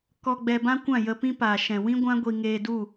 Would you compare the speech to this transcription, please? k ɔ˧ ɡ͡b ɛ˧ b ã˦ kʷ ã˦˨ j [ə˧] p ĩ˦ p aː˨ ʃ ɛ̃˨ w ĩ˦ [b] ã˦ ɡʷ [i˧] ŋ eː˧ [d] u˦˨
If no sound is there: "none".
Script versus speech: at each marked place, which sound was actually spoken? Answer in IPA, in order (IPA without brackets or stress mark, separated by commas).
ə˧, ɡʷ, i˧, d